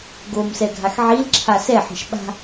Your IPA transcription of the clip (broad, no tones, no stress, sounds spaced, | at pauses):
ɡ o m s ɛ ɡʱ a x ʕ i l ǁʰ a s ɛ ħ i̤ ʃ ɓ a̤